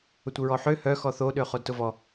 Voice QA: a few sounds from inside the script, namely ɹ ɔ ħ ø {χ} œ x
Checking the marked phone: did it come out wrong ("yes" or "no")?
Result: yes